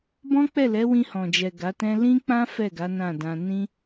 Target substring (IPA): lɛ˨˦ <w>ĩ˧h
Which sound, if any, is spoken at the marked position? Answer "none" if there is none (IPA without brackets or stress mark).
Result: w